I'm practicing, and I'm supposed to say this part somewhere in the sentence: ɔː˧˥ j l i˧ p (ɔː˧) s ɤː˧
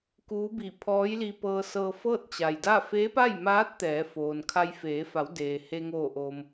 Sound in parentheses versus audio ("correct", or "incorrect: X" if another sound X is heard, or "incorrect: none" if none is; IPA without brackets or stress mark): incorrect: ɤː˧